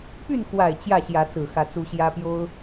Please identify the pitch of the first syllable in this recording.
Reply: falling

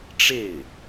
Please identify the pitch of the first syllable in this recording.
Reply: falling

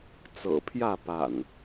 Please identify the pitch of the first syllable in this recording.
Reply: low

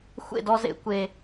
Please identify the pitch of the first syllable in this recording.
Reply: falling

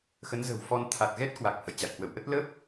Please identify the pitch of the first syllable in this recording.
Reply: rising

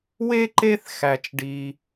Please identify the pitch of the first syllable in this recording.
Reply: high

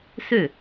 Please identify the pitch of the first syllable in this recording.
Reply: falling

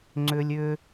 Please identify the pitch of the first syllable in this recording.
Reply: high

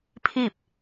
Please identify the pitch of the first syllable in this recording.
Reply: falling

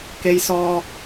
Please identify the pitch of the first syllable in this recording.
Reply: high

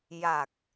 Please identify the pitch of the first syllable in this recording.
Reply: low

